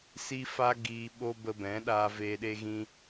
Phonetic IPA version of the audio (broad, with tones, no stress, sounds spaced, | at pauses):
s i˦ f a˦ ɡ iː˧ ɓ o˦ b ə˧ b ɛ̃˨˦ ɗ aː˧ v eː˧ ɗ e˦ ɣ ĩ˦